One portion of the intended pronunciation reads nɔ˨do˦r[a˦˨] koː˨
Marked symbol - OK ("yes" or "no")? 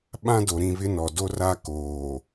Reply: no